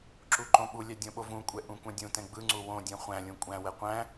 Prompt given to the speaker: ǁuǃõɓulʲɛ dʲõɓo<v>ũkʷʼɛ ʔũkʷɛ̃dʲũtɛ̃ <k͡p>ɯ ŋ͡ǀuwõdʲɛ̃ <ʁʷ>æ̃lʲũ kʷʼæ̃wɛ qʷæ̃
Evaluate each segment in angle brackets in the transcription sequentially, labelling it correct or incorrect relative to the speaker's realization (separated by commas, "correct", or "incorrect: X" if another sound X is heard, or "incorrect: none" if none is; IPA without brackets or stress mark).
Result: correct, incorrect: ɡ͡b, incorrect: χʷ